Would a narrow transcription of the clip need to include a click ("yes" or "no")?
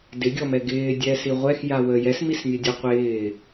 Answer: no